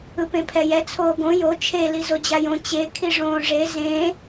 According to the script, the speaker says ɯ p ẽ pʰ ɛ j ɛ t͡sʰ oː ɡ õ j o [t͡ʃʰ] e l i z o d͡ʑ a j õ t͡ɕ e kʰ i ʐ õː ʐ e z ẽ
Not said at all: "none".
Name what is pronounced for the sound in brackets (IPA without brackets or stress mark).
t͡ʃʰ